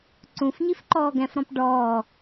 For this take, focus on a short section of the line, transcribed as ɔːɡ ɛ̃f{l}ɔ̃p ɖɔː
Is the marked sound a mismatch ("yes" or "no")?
yes